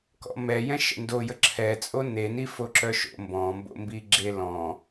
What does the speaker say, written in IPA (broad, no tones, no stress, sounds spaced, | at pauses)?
k ɔ̰ m ɛ j ɛ̃ ʃ ə̰ n d o j ə ǁʰ ɛ t͡sʼ o n e n i f o ǁ œ ʃ o̰ m b ɔ̃ m b o̰ m b i ɡ͡ǁ e l ɔ̃